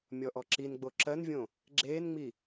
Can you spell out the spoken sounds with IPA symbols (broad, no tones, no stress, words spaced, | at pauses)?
mʲɔʔɔǁinɡ͡bo ǁɜnvʲõ | ɡ͡ǁeːnŋ͡mi